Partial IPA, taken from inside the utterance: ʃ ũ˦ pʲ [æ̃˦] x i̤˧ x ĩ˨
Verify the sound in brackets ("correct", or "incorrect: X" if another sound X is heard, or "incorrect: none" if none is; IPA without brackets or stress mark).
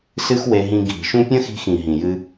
incorrect: ɐ̃˦